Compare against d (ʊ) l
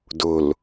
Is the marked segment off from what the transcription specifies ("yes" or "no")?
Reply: no